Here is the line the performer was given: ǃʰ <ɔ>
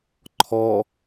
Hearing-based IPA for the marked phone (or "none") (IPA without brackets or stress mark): ɔ